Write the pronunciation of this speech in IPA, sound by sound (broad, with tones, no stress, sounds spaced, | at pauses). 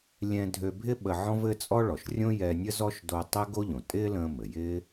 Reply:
lʲ ɛ̃˧ dʱ ø˧ bʱ ɪ˥ ɓ ə˧ ʕ ɔ̃˥ v ɘ˥ t͡sʼ ɔ˥ ɭ ɔ˩ ʃ rʲ õ˥ j ɛ˧ nʲ ə˥ z ɔ˥ ʃ d o˧ tˤ ɛ˥ ɡ o˥ ʎ õ˩ tʼ ɪː˥ l ə̃ː˧ m ɘ˩ j ɪː˥